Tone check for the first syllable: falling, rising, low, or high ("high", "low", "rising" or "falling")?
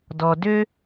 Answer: low